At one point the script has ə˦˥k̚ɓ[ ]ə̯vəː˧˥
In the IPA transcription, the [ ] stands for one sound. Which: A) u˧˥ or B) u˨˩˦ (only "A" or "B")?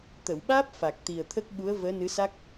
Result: A